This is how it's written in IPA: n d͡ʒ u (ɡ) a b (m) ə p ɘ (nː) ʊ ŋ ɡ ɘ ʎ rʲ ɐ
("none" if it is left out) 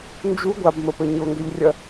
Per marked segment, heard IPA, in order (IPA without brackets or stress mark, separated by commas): ɡʷ, m, ɲ